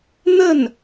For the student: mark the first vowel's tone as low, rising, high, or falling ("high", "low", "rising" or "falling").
falling